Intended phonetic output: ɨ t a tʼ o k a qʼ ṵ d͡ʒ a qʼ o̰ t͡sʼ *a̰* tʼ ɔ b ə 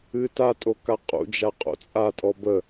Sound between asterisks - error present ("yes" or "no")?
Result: yes